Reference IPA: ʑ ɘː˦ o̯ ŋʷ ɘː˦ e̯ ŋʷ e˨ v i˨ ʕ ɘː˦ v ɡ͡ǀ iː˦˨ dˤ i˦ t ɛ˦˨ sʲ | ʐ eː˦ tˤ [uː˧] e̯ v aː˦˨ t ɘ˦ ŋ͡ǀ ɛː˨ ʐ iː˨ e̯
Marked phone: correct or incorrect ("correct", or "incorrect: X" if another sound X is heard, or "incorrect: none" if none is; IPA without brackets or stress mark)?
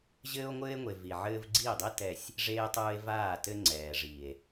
incorrect: uː˦